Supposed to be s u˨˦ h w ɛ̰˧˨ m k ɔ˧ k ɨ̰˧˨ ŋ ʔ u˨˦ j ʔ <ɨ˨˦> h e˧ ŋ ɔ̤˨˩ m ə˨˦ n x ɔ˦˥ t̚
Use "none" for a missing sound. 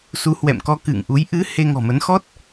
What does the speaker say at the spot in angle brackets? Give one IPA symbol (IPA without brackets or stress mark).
ɨ˨˦